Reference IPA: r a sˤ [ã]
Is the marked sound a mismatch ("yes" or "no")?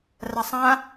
no